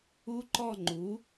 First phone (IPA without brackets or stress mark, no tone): u